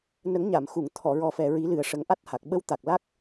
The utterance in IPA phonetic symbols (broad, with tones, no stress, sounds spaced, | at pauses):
n ə˨˩˦ ŋ ɲ a˨˩˨ m x u˨˩˨ ŋ t̪ʰ ɔ˨˩˨ ɹ ɔ˨˩ f ɛ˨˩ ɹ i˨˩˦ l ɨ˨˩ ə̯ ʂ ə˨˩˦ ŋ ʔ a˦˥ t̚ h a˨˩ k̚ ɓ ə˧˥ w t̪ a˨˩ k̚ l a˦˥ k̚